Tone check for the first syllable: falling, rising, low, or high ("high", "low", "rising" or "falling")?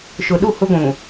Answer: low